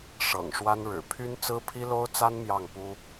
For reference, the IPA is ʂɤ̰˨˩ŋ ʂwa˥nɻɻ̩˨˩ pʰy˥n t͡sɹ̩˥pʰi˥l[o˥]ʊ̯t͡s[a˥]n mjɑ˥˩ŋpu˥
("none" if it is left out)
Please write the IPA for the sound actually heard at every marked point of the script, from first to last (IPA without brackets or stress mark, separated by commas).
o˥, a˥